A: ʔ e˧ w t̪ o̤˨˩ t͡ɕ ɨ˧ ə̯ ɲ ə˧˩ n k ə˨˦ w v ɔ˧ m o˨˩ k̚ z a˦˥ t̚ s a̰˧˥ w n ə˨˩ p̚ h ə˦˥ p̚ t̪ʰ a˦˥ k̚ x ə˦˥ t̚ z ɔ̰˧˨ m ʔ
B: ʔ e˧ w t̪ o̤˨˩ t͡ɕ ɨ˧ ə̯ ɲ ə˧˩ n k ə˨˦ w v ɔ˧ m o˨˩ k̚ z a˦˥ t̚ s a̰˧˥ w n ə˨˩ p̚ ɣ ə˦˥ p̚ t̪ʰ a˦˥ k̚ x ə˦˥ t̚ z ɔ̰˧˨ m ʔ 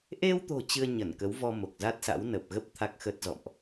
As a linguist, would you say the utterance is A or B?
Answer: B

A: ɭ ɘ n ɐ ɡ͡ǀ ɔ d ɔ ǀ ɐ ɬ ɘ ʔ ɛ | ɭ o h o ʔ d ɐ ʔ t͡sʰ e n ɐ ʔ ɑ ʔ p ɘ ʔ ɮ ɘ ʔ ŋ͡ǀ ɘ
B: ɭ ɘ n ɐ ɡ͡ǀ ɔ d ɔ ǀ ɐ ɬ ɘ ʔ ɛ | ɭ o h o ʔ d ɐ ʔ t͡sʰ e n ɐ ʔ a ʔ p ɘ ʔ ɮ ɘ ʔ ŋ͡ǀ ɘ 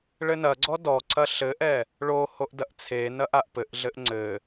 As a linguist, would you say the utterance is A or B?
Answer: B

